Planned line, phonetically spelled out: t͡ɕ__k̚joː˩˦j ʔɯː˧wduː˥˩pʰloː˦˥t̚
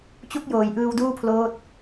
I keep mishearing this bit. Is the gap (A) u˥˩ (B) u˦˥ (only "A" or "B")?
A